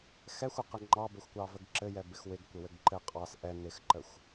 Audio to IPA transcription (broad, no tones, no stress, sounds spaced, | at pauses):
x ɛ xʷ ə q ɪ ŋ͡ǃ ɑ b ə xʷ kʷ ɑ v ə ɡ ǁ ɘ j ɛ b ɪ x w ɪ ɡ kʷ ɪ w ɘ ɡ ǃ ɘ qʼ ɑ s ʔ ɛ n ɪ x ǃ ə xʷ